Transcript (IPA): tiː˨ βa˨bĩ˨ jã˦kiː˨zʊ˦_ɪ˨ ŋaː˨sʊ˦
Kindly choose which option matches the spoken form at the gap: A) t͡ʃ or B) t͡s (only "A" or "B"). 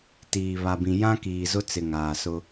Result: B